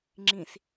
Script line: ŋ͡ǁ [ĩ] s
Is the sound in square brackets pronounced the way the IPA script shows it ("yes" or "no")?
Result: yes